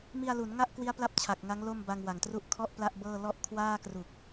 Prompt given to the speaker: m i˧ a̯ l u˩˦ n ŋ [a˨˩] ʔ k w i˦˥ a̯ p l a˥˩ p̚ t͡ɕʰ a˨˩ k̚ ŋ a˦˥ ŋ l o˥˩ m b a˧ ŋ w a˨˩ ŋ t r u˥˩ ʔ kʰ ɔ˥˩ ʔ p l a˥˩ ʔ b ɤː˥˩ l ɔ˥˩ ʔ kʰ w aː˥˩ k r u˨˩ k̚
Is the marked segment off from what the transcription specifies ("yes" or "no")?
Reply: yes